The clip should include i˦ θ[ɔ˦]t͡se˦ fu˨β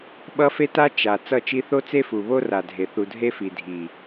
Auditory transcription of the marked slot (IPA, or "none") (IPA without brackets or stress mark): o˦